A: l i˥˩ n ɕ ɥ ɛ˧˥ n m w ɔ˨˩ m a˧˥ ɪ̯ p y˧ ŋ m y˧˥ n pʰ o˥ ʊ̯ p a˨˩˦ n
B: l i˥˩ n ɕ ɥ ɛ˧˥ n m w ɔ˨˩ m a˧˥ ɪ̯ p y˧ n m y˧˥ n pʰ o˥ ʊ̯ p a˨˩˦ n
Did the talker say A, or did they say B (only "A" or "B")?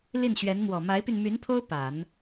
B